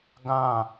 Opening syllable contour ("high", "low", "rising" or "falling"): falling